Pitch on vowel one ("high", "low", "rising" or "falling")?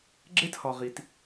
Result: high